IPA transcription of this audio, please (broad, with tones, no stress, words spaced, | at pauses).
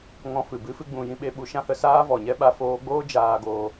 ŋɔ̃˧fɨ˨bɨ˨˦ fɨ˦ɡ͡bũ˧jĩ˦ ɓe˧ɓu˧ ʃã˦hə˧ saː˦vɔ˨ɲɛ˦ɓa˧ foː˧ɡ͡boː˦ d͡ʒaː˧ɡoː˧